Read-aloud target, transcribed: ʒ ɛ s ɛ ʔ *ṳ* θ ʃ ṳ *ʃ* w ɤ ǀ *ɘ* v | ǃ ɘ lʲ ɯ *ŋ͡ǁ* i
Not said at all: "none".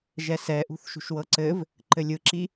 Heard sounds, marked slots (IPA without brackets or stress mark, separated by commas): ṳ, ʃ, ɘ, ǁ